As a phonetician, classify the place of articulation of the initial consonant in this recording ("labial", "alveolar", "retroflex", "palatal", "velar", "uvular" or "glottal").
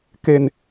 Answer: velar